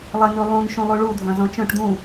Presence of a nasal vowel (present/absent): present